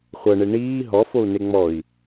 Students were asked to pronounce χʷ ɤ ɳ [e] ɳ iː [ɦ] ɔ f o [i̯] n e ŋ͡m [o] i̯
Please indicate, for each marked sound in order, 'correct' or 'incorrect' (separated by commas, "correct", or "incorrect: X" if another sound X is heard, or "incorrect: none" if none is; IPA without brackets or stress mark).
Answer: correct, correct, incorrect: u̯, incorrect: ɔ